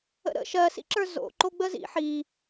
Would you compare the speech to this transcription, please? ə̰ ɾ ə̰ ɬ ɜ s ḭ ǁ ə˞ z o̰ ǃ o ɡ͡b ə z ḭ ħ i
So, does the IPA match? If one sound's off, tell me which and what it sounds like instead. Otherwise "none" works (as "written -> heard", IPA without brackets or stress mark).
ɬ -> ʃ